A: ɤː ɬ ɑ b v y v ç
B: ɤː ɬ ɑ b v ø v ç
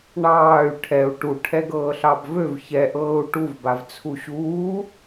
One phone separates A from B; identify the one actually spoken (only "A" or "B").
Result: B